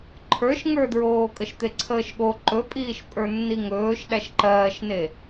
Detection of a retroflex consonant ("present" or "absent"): absent